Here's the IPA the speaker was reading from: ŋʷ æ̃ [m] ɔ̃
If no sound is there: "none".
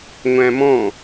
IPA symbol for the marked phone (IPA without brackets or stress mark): m